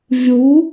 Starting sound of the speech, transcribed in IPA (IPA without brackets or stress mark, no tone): vʲ